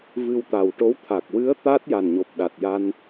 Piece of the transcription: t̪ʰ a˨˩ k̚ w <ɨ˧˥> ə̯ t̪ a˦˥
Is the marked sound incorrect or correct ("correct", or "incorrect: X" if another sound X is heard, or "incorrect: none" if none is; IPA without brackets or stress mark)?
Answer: correct